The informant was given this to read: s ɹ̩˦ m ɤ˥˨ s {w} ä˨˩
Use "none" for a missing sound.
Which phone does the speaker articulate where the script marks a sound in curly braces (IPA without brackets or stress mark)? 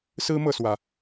w